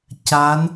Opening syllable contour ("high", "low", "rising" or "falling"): rising